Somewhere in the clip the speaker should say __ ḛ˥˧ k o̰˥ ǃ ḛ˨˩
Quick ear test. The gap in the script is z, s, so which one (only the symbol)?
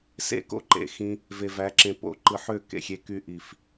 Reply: s